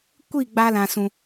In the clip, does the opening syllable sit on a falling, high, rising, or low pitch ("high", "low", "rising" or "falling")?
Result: falling